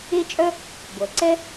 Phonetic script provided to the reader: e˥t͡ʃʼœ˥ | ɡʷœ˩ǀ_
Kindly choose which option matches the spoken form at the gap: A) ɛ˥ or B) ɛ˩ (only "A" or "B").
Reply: A